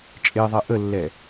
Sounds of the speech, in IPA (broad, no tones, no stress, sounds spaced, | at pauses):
t͡ʃʼ e ðˤ ɛ ʔ ə lː ɛ